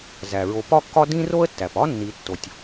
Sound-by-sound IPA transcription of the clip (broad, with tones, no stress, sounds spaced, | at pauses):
z æ˩ ɹ o˨ p ɒ˥ kː ɒ˥ d ĩ˥ r o˥ ə̯ tː æ˩ p ɒ˥ nː i˨ tː o˩ tʲ